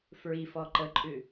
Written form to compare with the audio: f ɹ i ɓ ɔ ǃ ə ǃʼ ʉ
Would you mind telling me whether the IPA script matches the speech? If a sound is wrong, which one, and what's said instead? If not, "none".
ɓ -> f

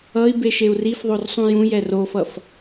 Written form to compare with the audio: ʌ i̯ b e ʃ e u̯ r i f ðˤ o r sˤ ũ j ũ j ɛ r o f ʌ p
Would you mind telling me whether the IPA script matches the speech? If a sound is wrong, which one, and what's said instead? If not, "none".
p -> f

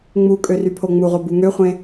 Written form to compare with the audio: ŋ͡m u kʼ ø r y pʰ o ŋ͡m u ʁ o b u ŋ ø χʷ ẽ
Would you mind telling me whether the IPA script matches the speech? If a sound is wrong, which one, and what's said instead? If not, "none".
none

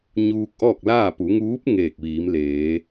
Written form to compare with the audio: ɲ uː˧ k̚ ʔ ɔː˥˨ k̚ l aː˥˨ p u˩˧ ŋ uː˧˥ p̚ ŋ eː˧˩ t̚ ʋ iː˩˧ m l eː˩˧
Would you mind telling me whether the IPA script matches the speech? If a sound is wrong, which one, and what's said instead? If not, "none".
t̚ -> k̚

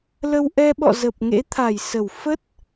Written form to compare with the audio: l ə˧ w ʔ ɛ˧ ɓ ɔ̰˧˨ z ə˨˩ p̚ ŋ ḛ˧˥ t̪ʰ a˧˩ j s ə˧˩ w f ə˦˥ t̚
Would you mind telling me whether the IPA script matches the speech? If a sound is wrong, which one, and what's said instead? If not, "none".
none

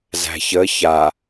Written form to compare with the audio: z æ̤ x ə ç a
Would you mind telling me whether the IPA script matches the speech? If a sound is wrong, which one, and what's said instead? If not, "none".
x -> ç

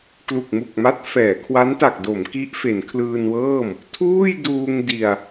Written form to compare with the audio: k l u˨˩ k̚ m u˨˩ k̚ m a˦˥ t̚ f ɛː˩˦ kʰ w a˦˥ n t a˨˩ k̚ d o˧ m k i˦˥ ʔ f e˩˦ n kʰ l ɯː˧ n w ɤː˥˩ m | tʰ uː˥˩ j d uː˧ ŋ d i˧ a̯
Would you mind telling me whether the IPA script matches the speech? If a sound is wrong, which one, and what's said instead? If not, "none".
o˧ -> o˩˦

